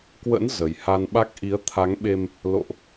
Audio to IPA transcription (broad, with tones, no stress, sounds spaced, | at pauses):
k w ə̰˧˥ n z ə˨˩ j h a˧ n ɓ a˦˥ k̚ ʔ i˨˦ ə̯ t̪ʰ a˨˦ ŋ ɓ e˧ m | l o̰˧˨ ʔ